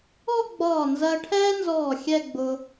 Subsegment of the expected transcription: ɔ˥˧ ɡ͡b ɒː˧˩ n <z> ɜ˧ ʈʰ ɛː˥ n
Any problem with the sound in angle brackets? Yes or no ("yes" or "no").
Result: no